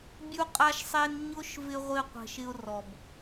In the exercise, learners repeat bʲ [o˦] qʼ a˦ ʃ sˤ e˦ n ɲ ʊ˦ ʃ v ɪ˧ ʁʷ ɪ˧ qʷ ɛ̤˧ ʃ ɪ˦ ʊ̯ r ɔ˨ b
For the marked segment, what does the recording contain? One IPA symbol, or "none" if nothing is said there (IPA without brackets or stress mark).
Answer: u˦